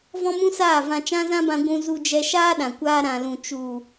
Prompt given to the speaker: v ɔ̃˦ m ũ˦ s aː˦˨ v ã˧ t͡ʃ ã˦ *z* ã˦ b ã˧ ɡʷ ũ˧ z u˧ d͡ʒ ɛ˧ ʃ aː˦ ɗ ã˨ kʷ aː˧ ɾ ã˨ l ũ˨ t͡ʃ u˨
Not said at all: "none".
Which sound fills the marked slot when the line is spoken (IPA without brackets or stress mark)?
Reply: z